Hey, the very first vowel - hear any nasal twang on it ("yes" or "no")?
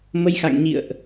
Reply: no